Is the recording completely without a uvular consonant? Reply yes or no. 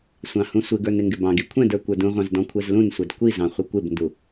no